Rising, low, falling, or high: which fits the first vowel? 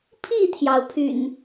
falling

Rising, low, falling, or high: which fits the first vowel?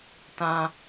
high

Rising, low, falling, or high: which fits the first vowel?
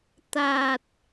low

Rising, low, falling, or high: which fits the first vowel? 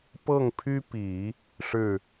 falling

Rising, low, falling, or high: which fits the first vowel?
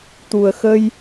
low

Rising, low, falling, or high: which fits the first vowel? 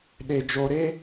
low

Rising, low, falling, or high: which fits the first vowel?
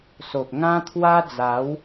low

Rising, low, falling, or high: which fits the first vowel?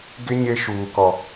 high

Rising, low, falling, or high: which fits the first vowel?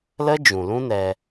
high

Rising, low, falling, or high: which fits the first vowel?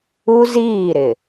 high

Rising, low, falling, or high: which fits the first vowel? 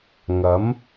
rising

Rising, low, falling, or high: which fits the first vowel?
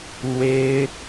high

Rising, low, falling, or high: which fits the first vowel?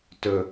low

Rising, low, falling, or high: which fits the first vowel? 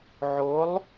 rising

